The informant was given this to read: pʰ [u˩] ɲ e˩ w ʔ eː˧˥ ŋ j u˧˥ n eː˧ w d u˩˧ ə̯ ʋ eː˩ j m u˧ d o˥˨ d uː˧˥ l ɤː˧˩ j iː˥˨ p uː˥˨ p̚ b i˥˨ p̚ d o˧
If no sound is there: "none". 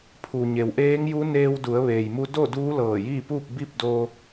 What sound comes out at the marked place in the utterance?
u˩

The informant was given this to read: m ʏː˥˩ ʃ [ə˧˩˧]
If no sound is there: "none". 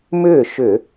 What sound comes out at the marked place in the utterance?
ʏ˧˩˧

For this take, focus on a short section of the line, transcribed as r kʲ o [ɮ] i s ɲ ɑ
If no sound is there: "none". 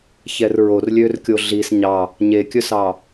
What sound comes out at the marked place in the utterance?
ɮ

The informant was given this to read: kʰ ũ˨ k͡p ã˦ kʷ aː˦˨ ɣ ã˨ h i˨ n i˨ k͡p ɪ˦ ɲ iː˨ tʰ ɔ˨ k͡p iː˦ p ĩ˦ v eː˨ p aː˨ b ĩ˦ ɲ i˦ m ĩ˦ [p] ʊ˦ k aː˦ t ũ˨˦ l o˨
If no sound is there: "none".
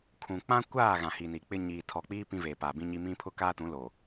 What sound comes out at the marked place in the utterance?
pʰ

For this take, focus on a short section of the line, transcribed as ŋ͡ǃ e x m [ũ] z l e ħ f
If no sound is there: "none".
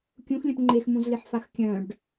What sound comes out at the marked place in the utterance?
ũ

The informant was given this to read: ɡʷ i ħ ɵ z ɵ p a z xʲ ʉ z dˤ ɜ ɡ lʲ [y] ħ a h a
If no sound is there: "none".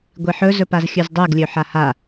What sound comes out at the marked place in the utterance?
ø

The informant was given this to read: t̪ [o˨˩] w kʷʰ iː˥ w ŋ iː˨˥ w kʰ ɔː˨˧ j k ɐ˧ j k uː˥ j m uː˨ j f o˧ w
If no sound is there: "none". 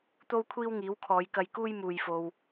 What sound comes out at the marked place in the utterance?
o˥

